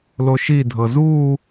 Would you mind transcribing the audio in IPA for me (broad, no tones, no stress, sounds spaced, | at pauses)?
l o ʃ i dʱ ɤ z uː